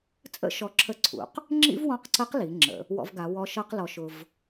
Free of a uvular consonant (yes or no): no